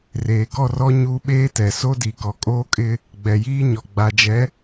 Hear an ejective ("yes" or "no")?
yes